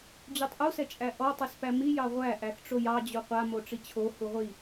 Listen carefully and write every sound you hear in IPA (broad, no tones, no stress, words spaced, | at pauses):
d͡ʑutˤʔu sɛt͡ʃʼæʔɔ tˤispæmi jɑʁʷæ ʔæxʈ͡ʂojɑ d͡ʑuqʷa moʈ͡ʂit͡ɕʰo huʁʷi